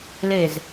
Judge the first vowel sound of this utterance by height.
mid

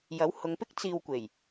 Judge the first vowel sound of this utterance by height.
low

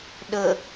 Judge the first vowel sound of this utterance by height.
mid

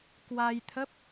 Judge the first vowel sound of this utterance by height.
low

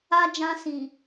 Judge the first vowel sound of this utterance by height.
low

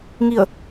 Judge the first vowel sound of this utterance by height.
high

